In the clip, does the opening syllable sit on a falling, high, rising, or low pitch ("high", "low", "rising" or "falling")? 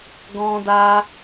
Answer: high